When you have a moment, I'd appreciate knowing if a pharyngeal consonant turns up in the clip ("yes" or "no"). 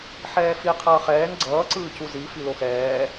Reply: yes